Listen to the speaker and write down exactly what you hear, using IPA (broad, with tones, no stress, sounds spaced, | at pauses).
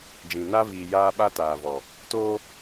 d͡ʒ ĩ˨ n a˦ v iː˨ j aː˦ ɓ a˦ t aː˨ v ɔ˨ | t oː˦